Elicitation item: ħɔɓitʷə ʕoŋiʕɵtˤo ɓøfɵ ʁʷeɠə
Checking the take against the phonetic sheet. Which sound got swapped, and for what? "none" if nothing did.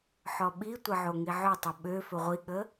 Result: e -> i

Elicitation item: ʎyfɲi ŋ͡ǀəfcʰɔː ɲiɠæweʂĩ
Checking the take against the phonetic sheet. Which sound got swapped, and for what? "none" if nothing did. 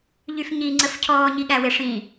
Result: none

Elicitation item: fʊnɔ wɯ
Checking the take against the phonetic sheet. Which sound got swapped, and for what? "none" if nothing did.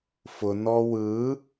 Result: none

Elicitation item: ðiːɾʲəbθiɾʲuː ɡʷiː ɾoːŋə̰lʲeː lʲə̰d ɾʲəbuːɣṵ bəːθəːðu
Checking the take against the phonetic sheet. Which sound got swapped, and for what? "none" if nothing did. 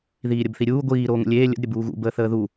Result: none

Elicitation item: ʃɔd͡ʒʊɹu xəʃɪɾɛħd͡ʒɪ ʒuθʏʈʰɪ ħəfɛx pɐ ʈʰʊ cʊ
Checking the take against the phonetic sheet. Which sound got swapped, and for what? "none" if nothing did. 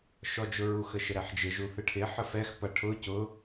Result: ʏ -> ɪ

